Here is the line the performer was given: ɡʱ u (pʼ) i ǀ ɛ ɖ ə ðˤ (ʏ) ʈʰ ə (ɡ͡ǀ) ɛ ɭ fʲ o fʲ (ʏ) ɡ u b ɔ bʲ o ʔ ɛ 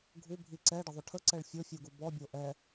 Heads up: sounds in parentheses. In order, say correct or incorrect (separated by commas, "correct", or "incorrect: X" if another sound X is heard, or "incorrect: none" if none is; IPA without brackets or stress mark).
incorrect: bʱ, correct, incorrect: ǀ, incorrect: u